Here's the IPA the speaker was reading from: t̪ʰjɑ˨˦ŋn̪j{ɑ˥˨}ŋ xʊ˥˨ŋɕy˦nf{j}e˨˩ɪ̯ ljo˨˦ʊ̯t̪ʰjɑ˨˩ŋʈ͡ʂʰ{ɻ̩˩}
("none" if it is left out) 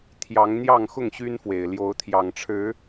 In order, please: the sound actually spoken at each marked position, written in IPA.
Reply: ɑ˥˨, w, ɻ̩˨˦

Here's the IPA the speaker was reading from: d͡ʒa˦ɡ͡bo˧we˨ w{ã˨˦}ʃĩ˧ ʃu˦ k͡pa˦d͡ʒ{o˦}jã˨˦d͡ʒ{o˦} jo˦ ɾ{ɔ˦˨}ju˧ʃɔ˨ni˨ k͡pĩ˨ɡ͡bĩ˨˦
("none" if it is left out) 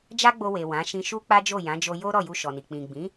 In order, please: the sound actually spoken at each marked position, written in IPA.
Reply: ã˨˦, o˦˨, o˧, ɔ˦˨

